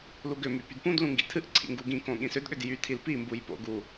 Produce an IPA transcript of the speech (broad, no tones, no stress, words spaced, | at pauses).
luɡʏmy pydpũdlũ ŋɡḭtʰɨʔǀʰḭ ŋɡuɡĩkõ ɠĩsʏdɠʏd jytʰil pimbuj po̰ɡu